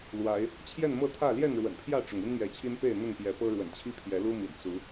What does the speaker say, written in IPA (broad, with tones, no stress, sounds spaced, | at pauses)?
l w a˨˦ ɪ̯ | t͡ɕʰ j ɛ˥˨ n m ɤ˥˨ t̪ʰ ä˥˨ l j ɛ˥˨ n ɻ w ə̰˨˩ n pʰ j ä˥˨ ʈ͡ʂ ʊ˩ ŋ i˦ n m ɥ ɛ˨˦ t͡ɕʰ i˦ n p e˥˨ ɪ̯ n̪ ə˥˨ n p j ɛ˨˦ p ɤ˦ ɻ w ə̰˨˩ n t͡ɕʰ i˦ pʰ j ɛ˨˦ l u˦ m ḭ˨˩ n s u˨˦